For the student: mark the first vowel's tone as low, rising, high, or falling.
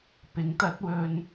rising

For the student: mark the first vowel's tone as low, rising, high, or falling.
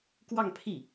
falling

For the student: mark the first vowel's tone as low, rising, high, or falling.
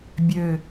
low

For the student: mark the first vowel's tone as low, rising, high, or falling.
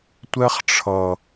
high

